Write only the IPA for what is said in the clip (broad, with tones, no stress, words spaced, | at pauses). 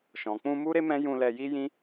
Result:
ʃɔ̃˨k͡pũ˧ mu˦ɾe˦mɛ̃˦ jũ˧lɛ˧ji˦jĩ˦